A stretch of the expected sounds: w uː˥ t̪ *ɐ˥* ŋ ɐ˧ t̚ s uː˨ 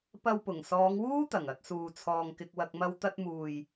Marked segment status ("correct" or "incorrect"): incorrect